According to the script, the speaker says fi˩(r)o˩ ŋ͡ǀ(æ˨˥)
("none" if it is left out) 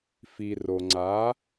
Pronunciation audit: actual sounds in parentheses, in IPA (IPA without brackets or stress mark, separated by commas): r, a˨˥